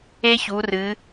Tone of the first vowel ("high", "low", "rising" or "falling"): high